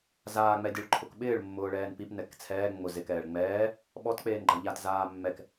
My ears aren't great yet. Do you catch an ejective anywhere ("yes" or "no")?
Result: no